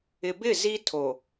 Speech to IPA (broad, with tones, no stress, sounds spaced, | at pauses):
ɪ˨ b ɪ˦˨ z i˦ tʰ o˨